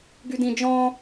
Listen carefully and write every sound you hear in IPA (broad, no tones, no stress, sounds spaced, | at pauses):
ɡ y d ĩ d͡ʒ ɔ̃